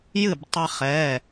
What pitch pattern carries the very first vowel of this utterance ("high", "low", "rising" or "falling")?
falling